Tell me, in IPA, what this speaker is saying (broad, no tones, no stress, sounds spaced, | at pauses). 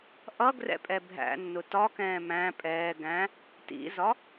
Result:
ʔ ʌ ɡ r ɛ̰ pʼ ɛ bʱ æ̰ nː ʊ t ɒ k ɛ̃ː m æ̃ pʼ ɛː ɡ æ̃ | t ḭ z ɒ